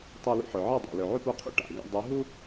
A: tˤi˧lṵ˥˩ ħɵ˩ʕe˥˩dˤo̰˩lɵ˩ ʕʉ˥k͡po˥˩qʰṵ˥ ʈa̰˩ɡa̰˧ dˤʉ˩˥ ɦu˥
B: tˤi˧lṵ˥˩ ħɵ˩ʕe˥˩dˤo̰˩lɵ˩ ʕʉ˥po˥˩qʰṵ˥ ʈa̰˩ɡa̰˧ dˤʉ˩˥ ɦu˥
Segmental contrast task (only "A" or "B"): B